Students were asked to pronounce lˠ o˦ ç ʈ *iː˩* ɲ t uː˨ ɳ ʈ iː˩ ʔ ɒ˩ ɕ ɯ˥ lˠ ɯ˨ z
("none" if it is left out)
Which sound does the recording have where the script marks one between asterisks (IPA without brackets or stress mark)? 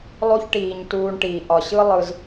iː˩